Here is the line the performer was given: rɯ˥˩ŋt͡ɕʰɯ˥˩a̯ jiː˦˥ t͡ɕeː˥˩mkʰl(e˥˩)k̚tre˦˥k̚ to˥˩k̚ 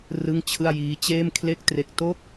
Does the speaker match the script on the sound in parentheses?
yes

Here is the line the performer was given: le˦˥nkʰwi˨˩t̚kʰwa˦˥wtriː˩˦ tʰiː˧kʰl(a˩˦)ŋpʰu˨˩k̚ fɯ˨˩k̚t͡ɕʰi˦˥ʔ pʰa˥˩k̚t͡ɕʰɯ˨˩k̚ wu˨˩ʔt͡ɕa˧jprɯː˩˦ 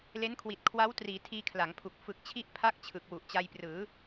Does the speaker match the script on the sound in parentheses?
yes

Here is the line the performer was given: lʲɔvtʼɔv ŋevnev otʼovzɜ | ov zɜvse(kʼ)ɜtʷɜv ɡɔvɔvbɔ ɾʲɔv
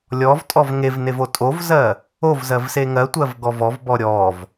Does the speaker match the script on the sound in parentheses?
no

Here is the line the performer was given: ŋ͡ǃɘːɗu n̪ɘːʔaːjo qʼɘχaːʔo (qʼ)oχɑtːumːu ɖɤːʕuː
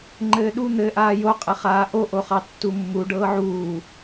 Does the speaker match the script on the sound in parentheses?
no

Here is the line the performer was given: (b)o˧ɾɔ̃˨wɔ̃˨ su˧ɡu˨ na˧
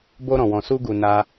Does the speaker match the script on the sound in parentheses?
yes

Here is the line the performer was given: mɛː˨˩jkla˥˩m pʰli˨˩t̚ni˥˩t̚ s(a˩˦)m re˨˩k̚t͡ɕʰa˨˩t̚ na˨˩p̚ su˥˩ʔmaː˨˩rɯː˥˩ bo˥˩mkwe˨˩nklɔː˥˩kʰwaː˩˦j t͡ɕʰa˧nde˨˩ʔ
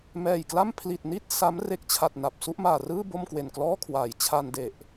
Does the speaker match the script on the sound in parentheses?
no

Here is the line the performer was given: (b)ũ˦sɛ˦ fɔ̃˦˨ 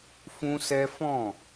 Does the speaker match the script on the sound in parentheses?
no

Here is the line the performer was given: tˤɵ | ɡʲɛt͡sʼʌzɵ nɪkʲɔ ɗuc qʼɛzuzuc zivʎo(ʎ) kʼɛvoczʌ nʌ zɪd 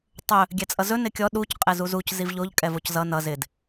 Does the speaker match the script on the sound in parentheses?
yes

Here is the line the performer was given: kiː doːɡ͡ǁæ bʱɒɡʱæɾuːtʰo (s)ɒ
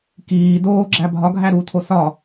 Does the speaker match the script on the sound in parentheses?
yes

